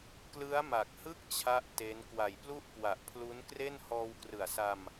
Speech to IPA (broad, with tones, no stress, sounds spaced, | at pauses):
k l ɯ˦˥ a̯ m a˨˩ k̚ h ɯ˥˩ k̚ t͡ɕʰ a˥˩ ʔ t e˦˥ n k w a˨˩ j p l u˥˩ ʔ k w a˨˩ ʔ pʰ l u˦˥ n k r e˥˩ n h ɔː˧ w k r ɯ˨˩ a̯ s a˧ m